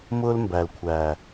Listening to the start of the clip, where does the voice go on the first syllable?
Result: high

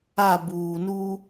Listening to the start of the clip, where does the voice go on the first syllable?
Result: falling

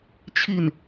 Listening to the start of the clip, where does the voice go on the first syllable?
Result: falling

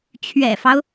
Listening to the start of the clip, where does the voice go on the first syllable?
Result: low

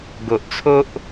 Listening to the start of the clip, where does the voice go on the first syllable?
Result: low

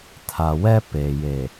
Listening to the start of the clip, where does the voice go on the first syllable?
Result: low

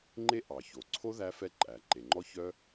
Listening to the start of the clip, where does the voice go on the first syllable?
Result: high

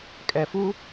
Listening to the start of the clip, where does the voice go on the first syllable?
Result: low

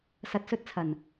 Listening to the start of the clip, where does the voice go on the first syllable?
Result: low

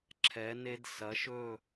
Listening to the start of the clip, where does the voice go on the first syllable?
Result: rising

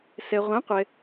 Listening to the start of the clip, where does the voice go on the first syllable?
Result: low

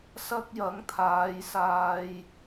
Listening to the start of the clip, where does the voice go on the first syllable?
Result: high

